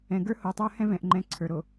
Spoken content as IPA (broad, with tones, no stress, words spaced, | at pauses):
ɛ̃˨ɡə˞˦ho˨tˤə˞˦ hɛ̃˦vɛ̃˨ʔŋ͡ǃɛ̃˨˦ ǀʰə˞˨ɾo˨